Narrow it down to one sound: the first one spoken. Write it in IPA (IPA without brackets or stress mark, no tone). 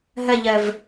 ɦ